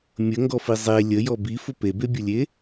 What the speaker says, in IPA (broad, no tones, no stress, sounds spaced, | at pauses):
mʲ ə ŋ ɡ ɔ f i zˤ e lʲ ə j ɔ b i f ʊ p e b e bʲ ʊ lʲ e